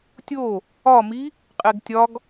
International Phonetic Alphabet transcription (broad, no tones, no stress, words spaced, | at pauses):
tʲo | ɒmi | qʼeɡtʲɒɡ